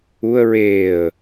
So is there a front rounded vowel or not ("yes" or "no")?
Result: no